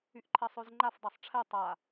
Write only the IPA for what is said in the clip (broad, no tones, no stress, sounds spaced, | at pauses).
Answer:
y ʔ ǃʰ ɛ sˤ ø z ŋ͡ǃ a f dˤ a sˤ ʈ͡ʂʰ ɛ tˤ a